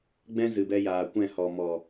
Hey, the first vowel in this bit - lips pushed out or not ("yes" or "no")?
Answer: no